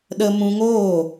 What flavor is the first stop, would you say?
implosive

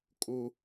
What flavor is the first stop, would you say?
ejective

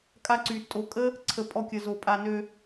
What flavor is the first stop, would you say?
ejective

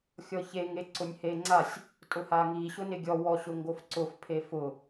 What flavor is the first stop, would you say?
click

